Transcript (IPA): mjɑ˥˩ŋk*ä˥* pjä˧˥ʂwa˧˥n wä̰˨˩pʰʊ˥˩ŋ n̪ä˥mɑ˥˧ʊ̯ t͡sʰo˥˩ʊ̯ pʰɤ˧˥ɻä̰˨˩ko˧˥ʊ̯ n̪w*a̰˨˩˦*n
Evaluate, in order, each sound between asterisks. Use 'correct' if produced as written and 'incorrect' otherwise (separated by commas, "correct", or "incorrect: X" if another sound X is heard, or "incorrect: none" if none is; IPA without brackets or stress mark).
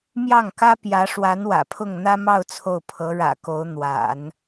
correct, correct